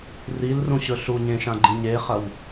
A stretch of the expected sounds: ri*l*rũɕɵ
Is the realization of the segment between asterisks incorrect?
no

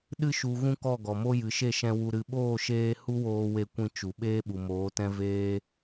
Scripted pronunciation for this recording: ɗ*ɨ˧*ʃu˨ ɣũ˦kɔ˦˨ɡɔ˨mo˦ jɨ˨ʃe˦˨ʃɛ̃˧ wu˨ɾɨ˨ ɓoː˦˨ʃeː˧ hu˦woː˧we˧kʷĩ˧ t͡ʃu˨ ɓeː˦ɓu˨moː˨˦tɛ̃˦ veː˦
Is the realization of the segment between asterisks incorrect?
no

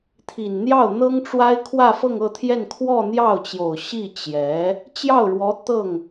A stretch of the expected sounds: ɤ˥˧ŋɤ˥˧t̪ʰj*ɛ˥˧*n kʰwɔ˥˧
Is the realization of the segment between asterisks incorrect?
no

